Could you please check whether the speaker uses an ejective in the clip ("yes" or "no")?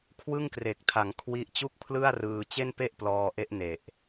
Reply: no